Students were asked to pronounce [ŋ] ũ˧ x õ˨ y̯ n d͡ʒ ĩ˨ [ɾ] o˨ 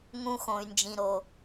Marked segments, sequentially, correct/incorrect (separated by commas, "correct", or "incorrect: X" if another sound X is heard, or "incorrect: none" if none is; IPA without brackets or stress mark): correct, correct